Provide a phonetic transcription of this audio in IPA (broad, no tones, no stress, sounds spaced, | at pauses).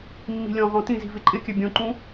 mː i̤ lʲ ɔ̃ ʁ ɔ̃ t ĩ z i̤ v ɪ ǃʼ ɪ kʲ ɘ bʲ õ ǃ ũ